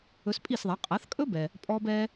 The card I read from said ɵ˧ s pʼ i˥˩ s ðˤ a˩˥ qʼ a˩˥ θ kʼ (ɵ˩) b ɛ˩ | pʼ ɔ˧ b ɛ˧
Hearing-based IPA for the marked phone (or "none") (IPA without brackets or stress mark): ɵ˥